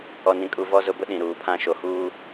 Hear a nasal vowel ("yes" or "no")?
yes